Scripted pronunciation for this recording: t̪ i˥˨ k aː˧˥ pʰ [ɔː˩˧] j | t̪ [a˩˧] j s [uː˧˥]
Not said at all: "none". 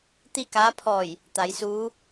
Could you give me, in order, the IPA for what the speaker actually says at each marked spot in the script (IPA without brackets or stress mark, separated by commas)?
ɔː˧˩, a˩˧, uː˧˥